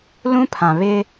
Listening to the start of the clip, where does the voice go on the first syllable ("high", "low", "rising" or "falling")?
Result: high